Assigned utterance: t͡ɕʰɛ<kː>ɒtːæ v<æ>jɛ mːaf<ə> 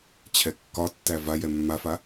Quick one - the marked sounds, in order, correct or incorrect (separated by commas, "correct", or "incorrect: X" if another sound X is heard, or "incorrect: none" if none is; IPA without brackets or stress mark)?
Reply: correct, incorrect: a, incorrect: a